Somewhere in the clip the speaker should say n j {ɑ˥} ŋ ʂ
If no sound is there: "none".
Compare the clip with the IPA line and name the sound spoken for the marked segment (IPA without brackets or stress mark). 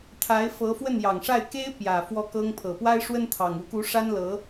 ɑ˨˩